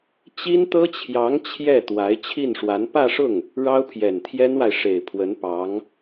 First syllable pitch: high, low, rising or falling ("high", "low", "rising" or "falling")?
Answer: high